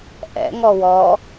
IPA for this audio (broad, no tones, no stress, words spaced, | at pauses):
ʔɛ̰ŋɔ wɔ